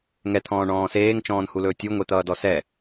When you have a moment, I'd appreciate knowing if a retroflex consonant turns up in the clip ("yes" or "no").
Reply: yes